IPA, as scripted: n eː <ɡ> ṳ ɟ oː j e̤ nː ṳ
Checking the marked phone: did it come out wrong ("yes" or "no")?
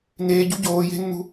yes